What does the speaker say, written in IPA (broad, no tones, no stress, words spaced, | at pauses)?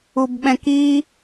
ubɓɛ̃ki